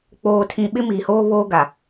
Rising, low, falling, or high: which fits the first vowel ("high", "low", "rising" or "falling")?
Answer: low